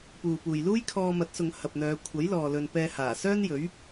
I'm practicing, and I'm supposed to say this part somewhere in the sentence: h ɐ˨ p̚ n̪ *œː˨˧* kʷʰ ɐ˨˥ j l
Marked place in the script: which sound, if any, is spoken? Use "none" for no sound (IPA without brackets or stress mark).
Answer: œː˨˧